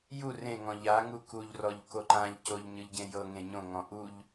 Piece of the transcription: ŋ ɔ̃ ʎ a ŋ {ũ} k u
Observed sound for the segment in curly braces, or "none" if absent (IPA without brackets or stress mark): u